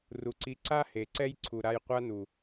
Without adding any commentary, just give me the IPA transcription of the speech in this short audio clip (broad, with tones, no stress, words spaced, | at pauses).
ru˨ǀi˨˦ǀa˦ he˨ǀɛ˦j ǀʰu˨ɾa˧j qʷa˦nu˨